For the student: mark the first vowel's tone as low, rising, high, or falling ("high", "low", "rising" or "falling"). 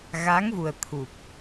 rising